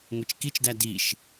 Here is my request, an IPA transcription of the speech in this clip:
ŋʷ e t͡ʃ k i t͡ʃ d æ d i ʃ

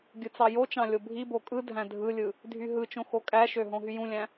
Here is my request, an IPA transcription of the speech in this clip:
ɡʲ ɯ t͡s ɑ j o t͡ʃ ɑ̃ lʲ o bʱ i b o kʼ ɯ dʱ æ̃ dʱ ɯ lʲ ɯ | dʱ y ɦ ɯ t͡ʃ õ x o kʼ æ ʃ ø ɦ õ ɦ y j ũ lʲ æ̃

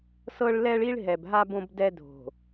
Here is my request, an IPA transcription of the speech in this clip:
s ɤ˦ ɭ l ɛ˦ ɭ i˦ ɭ ɦ ɛ˨ b ɦ a˦ b õ˦ b d ɛ˦ dʱ o̤˨

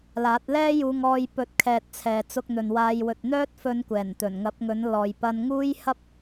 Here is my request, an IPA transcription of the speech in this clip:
l aː˨˥ t̚ l ɛː˥ j uː˧ ŋ ɔː˧ j p ɵ˨˥ t̚ kʰ ɛː˨ t̚ t͡sʰ ɛː˨ t͡s ʊ˧ k̚ n̪ ɵ˨ n w aː˧ j w ɵ˨ t̚ n̪ œː˥ t̚ f ɵ˧ n kʷ ɛː˨˩ n t̪ ɵ˨˩ n ŋ ɐ˨˥ p̚ ŋ ɵ˨˥ n l ɔː˨ j p ɐ˧ n ŋ uː˥ j h ɐ˥ p̚

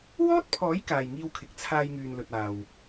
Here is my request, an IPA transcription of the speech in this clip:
w ɔː˥ t̚ pʰ ɔː˨˥ j k aː˨ j ŋ iː˧ w kʰ ɪ˨ k̚ t͡sʰ aː˧ j ŋ yː˨ n l ɵ˨ t̚ aː˨ w

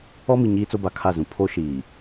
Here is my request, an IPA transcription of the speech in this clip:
ɔ˦ m i˨ ɲ iː˦ t͡s o˦ b a˨ kʰ a˦˨ z ũ˨ pʰ o˦ ʃ iː˨

